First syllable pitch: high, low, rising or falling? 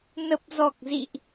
low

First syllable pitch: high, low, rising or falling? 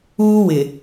high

